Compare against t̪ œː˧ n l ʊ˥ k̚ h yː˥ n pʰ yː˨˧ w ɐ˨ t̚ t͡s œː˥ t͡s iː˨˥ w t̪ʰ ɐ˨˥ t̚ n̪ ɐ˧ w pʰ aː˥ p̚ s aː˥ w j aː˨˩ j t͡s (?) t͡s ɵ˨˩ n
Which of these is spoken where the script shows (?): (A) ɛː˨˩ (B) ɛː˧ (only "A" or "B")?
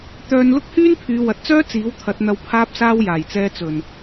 B